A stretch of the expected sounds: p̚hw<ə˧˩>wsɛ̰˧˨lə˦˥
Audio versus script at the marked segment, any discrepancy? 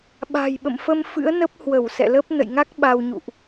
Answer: no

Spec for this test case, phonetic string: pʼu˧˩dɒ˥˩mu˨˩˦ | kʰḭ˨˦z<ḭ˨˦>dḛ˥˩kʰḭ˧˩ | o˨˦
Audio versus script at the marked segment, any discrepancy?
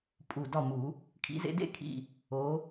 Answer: yes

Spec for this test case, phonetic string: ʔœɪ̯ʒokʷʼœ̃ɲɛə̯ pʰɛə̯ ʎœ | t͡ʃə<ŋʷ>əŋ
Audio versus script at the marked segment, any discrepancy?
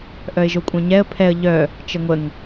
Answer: no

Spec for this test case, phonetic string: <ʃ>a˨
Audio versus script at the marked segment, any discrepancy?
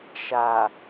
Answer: no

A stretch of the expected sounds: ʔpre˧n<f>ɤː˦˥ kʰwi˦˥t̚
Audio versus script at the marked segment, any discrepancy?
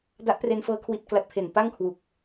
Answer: no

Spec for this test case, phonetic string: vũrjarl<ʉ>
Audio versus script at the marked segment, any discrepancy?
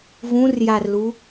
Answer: yes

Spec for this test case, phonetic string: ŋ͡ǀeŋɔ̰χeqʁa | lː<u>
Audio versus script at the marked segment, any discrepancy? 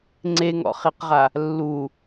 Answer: no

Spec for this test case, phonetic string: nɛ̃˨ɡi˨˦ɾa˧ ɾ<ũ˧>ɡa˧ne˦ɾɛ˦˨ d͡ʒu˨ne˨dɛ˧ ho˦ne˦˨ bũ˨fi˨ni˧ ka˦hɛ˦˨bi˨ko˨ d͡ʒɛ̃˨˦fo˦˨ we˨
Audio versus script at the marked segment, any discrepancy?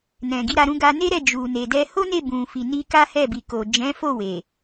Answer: no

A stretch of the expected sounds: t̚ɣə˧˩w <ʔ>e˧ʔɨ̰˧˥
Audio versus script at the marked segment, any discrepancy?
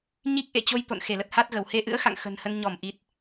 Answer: yes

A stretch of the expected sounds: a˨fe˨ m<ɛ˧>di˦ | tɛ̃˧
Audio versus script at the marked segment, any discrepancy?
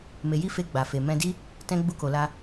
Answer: yes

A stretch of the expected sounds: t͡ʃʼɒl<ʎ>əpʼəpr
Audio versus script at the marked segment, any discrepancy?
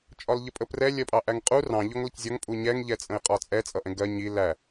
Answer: no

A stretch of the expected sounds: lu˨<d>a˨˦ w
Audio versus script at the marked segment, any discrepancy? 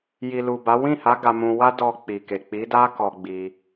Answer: yes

